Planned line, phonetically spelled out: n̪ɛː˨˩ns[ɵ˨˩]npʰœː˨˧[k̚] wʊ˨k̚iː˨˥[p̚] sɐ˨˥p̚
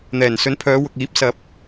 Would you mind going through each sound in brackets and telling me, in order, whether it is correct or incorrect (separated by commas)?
incorrect, incorrect, correct